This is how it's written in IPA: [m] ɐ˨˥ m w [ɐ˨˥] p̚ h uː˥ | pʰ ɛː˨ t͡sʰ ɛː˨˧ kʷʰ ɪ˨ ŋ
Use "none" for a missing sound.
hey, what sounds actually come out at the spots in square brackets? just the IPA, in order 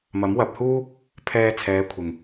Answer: m, ɐ˨˥

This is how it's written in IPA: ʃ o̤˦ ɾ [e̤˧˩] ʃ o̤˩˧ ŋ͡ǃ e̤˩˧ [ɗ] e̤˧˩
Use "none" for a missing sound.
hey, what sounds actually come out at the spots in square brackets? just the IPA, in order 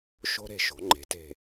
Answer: e̤˧˩, t

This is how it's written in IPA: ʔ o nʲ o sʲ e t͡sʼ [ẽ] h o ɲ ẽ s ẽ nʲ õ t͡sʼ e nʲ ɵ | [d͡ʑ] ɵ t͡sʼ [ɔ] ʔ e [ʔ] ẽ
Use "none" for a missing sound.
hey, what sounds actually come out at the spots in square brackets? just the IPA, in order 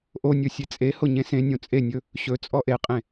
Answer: e, ɕ, ɔ, qʼ

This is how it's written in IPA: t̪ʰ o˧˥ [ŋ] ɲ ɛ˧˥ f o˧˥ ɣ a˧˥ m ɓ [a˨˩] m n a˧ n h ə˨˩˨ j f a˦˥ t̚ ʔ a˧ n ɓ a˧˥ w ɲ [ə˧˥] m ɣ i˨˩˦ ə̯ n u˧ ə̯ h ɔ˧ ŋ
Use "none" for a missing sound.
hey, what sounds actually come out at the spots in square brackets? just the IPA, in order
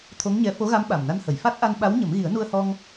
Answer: ŋ, a˨˩, ə˨˩˦

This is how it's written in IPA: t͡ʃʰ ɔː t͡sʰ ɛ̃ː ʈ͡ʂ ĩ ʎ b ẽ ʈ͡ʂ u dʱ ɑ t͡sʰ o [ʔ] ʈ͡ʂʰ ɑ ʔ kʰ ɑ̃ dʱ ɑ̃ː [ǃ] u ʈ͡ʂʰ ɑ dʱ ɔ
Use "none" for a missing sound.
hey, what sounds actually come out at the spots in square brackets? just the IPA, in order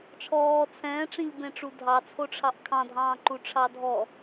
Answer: none, ǃ

